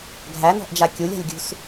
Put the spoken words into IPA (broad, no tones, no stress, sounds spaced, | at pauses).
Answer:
ɡʱ æ n ɔ̤ ʔ d͡ʒ a kʲ u lʲ a̤ lʲ ɡʲ ṳ s